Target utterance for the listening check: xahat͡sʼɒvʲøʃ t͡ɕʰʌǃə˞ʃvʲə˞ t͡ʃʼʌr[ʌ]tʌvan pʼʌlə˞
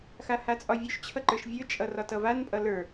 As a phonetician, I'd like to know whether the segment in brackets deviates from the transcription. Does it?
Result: yes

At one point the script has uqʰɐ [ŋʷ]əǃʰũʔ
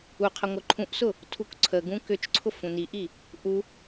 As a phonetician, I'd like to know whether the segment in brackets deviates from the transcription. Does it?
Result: no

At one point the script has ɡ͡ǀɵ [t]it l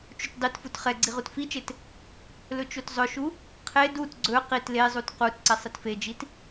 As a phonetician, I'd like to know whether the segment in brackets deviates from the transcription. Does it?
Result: yes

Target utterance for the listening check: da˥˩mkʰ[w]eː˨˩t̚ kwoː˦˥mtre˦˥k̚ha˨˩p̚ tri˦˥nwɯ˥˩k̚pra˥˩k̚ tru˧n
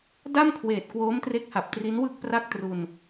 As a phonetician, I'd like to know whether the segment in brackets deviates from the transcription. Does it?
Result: no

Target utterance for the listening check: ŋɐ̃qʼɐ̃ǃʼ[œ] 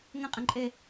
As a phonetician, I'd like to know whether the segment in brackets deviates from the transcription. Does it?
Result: yes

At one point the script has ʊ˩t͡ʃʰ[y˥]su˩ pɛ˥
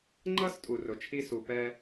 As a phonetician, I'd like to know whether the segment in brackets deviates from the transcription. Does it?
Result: yes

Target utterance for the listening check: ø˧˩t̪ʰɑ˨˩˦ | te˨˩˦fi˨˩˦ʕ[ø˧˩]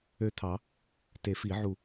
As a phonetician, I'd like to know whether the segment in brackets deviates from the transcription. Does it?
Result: yes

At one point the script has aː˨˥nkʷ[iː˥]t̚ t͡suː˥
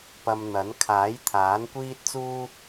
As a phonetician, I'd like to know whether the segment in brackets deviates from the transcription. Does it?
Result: no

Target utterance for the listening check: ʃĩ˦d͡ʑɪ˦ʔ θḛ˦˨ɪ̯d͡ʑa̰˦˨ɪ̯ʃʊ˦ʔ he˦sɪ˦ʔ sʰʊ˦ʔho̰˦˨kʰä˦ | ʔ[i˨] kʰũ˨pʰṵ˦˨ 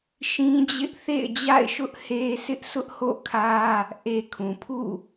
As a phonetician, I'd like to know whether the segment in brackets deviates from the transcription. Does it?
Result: yes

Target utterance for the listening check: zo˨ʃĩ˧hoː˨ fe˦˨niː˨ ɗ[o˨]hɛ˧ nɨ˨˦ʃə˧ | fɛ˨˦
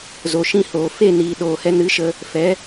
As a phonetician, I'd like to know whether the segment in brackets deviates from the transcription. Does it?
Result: yes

